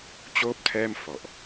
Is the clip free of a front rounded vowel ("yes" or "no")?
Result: yes